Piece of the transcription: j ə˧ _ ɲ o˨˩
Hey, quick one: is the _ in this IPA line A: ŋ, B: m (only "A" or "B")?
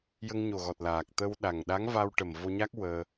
A